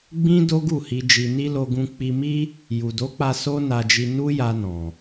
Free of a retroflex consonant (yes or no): yes